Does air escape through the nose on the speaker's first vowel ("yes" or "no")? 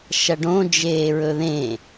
no